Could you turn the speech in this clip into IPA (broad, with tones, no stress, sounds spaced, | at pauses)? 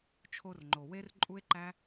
t͡ʃʰ o˧ r ŋ͡ǃ o˨ w e˦ r ǃʼ u˦ e̯ ǃ æ˦